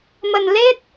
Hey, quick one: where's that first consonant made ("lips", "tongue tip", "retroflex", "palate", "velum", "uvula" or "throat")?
lips